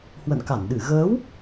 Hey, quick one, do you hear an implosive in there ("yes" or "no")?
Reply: yes